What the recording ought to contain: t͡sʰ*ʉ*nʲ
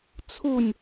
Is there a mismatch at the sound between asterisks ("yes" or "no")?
yes